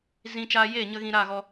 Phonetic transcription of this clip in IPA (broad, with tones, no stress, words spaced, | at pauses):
zĩ˧t͡ʃaː˧ jeː˦˨ɲə˧ ɣĩ˧ɾa˦˨ɣɔ˧